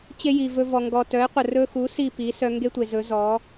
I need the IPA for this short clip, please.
t͡ɕe˦ji˨vɵ˧vɔ˨ ŋɡɔ˨tœ˨˦ɪ̯qʷə˨ rɵ˧xu˨˦ si˦˨pi˨˦ sœ˧ŋɡe˦tʷe˨ zɵ˨˦zɔ˨˦

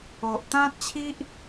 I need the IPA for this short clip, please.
o˨ʔt̪ã˦t̚t͡ɕʰi˦ʔ

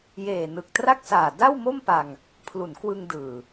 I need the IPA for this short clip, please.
jeː˨˩nɯ˨˩k̚tra˥˩k̚saː˨˩ da˥˩w mo˥˩mpa˧ŋ | pʰlu˩˦nkwɯ˧ŋdɯː˨˩

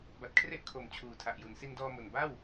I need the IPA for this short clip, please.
ba˨˩t̚kʰre˥˩ʔkʰo˨˩m t͡ɕʰuː˨˩tʰa˨˩ʔju˨˩n si˧ndɔː˧ mo˨˩n ba˥˩w

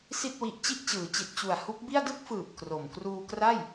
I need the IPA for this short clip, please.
si˥˩t̚wi˦˥ʔ t͡ɕi˥˩ʔt͡ɕɯː˩˦ t͡ɕi˨˩t̚t͡ɕu˨˩a̯ hu˦˥k̚bi˥˩a̯ dɯ˥˩k̚fɯː˨˩p̚ kro˨˩m kruː˧kra˥˩j

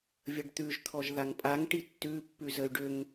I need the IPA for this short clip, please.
vʲəɖt̪ʉʒt̪ʰɔʒ ðaŋpʼaŋʈi tːʉ pːʉzəy̯ɖʏŋ

